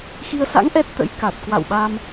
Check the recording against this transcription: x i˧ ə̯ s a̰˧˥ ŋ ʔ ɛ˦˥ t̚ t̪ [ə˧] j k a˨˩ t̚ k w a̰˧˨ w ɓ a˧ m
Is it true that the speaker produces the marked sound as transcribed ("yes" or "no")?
no